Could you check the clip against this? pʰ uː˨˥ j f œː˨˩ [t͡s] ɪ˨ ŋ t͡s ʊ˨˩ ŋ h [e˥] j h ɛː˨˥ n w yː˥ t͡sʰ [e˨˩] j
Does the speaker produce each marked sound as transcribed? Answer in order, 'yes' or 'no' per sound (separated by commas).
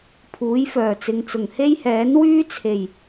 yes, yes, yes